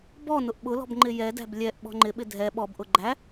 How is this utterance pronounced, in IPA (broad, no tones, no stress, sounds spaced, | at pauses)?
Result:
b ɔ n ʊ ʔ ɓ ʊ l ɔ̤ b ŋ͡ǃ ɪ j ɛ d æ̤ b lʲ ɛ ʔ ɓ ɔ̤ ŋ͡ǃ ɪ ɓ ɪ dʱ ɛ ɓ ɔ b ʔ ʊ ɡ͡ǃ æ